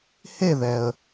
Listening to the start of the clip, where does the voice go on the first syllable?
falling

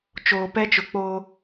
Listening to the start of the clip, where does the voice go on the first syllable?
low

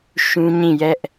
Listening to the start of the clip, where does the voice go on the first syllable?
high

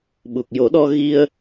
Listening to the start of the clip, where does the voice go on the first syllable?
low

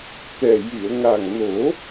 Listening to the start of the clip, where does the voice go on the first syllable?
low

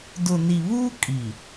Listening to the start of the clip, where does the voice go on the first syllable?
low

